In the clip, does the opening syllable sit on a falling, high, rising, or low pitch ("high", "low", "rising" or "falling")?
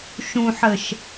low